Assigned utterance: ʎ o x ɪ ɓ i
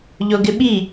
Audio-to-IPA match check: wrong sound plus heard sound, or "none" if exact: x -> ɡ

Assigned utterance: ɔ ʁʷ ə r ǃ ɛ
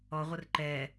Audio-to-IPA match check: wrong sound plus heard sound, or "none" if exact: none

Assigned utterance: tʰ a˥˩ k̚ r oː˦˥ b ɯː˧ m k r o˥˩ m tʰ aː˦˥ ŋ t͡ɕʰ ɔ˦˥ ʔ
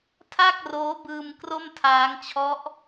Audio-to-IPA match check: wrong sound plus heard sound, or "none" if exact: none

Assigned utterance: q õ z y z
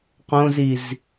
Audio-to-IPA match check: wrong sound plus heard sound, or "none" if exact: y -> i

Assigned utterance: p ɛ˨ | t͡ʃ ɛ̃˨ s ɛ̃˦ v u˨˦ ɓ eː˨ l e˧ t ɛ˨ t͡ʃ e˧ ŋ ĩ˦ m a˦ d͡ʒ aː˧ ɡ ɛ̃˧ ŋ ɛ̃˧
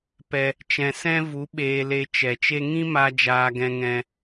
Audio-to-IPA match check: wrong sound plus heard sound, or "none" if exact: t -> t͡ʃ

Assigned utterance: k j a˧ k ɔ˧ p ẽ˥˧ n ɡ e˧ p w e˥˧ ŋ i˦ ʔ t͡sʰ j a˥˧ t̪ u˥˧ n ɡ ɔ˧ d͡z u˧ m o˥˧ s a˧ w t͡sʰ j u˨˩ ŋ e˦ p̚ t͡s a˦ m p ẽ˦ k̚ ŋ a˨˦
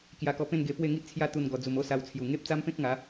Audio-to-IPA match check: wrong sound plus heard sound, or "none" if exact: o˥˧ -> o˦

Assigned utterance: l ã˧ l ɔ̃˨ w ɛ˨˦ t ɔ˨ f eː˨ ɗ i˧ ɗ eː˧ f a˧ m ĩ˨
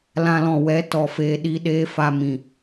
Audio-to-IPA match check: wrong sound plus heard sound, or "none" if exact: none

